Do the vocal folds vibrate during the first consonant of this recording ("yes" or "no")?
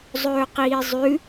yes